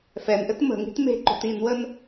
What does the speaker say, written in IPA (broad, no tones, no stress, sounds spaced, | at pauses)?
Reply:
f ɛ n ʔ ɘ t m ə̤ ŋ i̤ t m e̤ ǃ o̤ t i n w ə n